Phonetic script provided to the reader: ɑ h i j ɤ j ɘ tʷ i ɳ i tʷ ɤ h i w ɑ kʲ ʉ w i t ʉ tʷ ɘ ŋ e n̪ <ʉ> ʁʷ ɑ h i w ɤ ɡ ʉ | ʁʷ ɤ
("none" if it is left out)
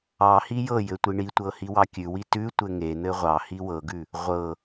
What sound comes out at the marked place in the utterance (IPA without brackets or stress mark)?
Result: ɘ